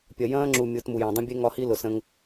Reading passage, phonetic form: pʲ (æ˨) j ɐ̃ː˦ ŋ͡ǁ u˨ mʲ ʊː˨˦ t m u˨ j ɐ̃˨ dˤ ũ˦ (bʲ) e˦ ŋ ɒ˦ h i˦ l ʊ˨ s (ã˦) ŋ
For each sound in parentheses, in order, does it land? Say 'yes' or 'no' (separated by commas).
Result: no, yes, no